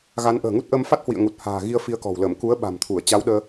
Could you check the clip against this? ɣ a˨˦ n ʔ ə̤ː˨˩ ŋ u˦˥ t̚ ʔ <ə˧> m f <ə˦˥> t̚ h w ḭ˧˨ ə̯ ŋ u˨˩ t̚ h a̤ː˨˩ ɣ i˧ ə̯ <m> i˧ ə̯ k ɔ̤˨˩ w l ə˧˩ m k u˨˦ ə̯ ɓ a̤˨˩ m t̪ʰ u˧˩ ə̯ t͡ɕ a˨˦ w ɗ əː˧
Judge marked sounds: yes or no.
yes, no, no

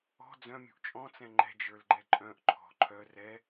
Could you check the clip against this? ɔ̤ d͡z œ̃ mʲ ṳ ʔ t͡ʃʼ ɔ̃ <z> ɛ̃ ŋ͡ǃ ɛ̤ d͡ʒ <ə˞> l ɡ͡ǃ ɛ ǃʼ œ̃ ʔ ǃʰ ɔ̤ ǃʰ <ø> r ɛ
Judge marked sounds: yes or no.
no, yes, no

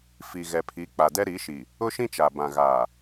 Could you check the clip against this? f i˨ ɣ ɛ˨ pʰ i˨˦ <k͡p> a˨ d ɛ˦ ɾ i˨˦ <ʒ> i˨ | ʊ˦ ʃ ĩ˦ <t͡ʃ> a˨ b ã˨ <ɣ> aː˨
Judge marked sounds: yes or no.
yes, no, yes, yes

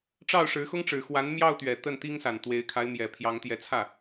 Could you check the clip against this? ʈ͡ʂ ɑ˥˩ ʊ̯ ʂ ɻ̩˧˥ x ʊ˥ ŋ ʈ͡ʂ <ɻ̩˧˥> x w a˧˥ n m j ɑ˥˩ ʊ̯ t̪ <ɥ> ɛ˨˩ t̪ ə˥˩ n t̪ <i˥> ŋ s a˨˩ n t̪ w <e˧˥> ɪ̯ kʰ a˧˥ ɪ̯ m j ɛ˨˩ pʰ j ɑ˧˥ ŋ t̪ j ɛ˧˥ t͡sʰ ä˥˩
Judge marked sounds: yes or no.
no, yes, yes, yes

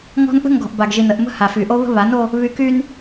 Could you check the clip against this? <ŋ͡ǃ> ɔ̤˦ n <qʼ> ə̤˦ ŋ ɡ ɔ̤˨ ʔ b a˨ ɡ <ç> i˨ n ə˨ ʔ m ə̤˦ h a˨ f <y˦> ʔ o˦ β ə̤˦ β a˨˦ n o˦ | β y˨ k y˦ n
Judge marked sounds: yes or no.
no, no, no, no

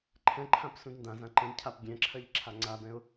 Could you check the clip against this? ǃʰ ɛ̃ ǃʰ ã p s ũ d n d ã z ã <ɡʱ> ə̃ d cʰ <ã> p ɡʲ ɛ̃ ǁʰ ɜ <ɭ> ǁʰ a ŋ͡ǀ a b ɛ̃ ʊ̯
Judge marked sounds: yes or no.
no, no, no

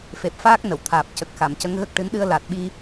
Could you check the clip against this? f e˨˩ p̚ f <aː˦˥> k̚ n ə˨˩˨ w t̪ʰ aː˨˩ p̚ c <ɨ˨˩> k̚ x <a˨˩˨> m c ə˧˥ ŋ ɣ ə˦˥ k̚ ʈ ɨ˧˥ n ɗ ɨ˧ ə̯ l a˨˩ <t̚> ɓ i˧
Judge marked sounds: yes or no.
yes, no, yes, yes

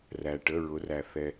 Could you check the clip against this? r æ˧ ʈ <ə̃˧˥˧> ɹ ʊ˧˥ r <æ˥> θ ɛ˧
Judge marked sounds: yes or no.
no, no

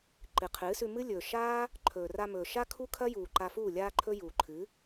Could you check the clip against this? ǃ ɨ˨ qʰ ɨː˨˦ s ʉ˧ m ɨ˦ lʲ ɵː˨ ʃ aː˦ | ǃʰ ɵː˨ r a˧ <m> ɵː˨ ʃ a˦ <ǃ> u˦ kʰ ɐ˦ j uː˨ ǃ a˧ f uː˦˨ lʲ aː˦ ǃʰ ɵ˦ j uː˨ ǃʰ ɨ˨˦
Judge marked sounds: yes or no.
yes, no

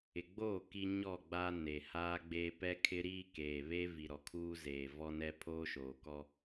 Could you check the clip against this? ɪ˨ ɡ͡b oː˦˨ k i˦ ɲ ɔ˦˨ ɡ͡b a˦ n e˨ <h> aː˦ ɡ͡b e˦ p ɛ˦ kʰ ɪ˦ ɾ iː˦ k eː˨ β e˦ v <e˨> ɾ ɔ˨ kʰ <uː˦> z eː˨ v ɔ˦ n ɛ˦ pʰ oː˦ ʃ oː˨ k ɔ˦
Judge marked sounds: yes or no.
yes, no, yes

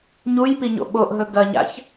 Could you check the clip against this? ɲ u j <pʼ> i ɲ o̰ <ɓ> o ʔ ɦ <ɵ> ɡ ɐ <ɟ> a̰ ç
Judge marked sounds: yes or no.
no, yes, yes, no

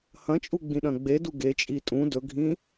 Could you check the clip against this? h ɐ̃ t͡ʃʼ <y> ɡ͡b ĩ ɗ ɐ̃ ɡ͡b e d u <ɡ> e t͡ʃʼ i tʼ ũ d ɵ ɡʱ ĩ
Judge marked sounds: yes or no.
no, yes

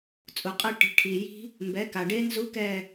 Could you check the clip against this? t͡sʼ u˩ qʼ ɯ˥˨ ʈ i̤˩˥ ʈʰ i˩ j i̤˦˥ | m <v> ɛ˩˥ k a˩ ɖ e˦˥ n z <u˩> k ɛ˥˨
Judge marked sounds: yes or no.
no, no

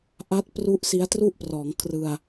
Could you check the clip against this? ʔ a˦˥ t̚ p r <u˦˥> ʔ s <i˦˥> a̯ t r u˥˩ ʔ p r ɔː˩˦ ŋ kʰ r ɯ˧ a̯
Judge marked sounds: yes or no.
yes, yes

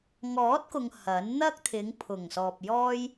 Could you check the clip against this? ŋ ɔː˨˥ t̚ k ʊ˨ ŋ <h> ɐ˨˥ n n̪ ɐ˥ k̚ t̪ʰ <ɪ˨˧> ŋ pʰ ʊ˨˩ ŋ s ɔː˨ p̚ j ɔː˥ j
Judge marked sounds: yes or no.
yes, yes

